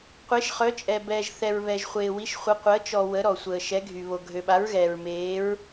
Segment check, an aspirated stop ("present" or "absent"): absent